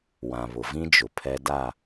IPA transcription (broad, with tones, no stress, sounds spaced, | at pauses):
w ã˨ β ʊ˨ v ĩ˦ d͡ʒ ʊ˨ pʰ ɛ˦ d a˦˨